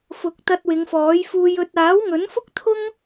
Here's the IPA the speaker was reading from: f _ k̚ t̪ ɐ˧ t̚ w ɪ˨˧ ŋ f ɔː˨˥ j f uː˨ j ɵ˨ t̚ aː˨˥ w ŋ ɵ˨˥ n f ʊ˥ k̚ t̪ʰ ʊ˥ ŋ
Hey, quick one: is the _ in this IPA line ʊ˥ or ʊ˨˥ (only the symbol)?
ʊ˨˥